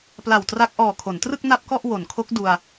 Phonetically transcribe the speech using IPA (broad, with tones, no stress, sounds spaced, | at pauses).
p l a˨˩ w t r a˦˥ k̚ ʔ ɔː˨˩ kʰ o˩˦ n t r ɯ˥˩ k̚ n a˥˩ p̚ k ɔ˥˩ ʔ w o˩˦ n kʰ o˦˥ k̚ d u˧ a̯